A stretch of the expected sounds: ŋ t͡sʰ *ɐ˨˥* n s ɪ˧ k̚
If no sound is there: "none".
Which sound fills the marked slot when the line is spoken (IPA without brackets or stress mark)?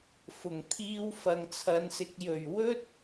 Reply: ɐ˨˧